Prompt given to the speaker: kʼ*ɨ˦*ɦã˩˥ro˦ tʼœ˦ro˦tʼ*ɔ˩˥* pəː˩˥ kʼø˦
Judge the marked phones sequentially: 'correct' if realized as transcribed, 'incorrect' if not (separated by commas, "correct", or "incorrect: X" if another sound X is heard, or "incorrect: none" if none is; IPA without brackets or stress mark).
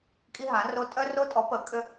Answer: incorrect: i˦, correct